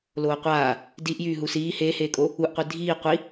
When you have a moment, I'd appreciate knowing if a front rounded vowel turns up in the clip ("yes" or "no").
yes